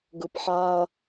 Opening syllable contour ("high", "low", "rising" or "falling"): low